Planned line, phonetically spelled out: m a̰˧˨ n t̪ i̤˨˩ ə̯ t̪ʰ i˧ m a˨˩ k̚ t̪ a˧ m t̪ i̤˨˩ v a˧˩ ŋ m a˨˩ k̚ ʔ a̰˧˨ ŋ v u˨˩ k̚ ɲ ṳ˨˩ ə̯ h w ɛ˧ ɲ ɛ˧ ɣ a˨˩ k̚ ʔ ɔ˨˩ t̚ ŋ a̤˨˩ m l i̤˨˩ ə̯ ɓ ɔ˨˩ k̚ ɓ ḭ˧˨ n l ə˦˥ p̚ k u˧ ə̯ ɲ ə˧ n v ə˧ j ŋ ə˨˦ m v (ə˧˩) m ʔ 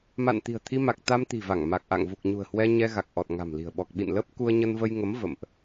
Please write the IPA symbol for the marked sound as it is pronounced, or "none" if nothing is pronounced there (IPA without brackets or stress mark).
ə̰˧˨